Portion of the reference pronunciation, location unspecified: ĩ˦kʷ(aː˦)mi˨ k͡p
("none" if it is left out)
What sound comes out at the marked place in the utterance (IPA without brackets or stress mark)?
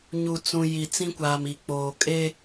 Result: aː˨